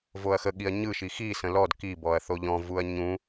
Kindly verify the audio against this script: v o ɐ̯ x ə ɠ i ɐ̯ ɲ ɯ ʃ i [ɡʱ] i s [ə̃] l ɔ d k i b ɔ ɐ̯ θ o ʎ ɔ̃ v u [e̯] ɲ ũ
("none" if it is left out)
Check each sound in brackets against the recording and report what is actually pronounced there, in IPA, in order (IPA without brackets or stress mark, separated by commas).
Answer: x, ə̃, ɐ̯